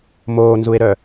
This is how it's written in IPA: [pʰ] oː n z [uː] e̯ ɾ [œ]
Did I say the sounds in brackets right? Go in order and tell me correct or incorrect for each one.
incorrect: m, incorrect: u, correct

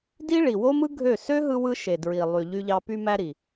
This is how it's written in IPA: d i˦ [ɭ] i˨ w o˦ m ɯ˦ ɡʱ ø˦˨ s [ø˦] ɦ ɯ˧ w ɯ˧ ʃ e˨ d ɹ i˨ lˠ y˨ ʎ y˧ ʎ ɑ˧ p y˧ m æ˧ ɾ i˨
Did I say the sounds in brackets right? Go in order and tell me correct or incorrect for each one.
correct, correct

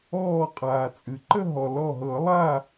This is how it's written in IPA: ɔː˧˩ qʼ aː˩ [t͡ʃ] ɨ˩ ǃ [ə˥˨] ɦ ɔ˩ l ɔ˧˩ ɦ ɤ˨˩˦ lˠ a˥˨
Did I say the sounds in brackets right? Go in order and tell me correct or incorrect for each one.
incorrect: t͡sʼ, correct

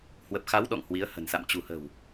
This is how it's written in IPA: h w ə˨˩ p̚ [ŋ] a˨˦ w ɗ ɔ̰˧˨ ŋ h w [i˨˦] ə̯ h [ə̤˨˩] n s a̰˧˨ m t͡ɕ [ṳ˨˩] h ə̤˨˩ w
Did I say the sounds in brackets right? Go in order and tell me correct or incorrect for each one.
incorrect: x, correct, correct, correct

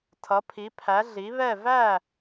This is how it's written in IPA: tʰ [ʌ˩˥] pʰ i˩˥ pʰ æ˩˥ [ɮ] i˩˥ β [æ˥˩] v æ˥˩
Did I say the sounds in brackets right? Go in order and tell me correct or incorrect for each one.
correct, correct, incorrect: ɛ˥˩

